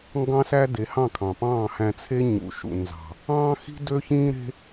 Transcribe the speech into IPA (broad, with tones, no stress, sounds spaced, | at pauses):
ŋ ɡ ɑ̃˦ s æ˦ d e˨˦ h ɑ̃˦˨ kʰ ɑ̃˨ p ɑ̃ː˦˨ h æ̃˧ t͡sʰ e˦ ɲ ṵ˨ ʃ ṵ˨ n z ɑ̤˨ | ɑ̃ː˦ x i̤˦ d ø˦ ç ĩː˦ ɾ e̤˦